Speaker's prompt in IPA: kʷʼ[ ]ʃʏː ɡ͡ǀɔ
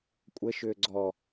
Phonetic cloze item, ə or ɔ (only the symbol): ə